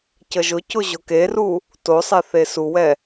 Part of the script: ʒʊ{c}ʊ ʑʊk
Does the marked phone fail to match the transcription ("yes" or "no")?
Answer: no